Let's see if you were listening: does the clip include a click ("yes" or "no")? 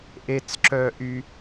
yes